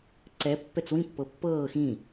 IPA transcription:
ǀ ɛ pː ɛ t͡s w ĩ pː ɤ pː ɤː x ĩ

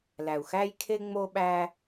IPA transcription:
l æ˨ u̯ x æ˦ j kʰ e˦ ŋ͡m o˦ ɓ æ˦

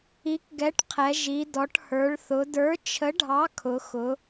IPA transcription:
i˨˥ k ɡ ɛ˨˥ ʈ qʰ ɛ˩˧ ʒ i˩˧ d ɔ˩˧ ʈ h ə˞˩˧ ɭ θ ʊ˩˧ d ə˞˨˥ t͡ʃʰ ə˨˥ ɖʱ ɑ˨˥ kʰ ʊ˩˧ x ʊ˩˧

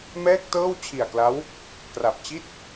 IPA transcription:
m ɛː˥˩ k̚ t ɤː˥˩ w t͡ɕʰ i˨˩ a̯ k l a˦˥ w | k r a˨˩ p̚ t͡ɕ i˥˩ t̚

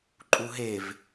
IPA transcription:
ǃʼ u ɦ e v

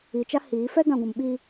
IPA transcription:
i˨ t͡ʃ a˦ h iː˨˦ f ɛ˦ ɡ ã˨ ɡʷ ũ˨ m ɓ i˦

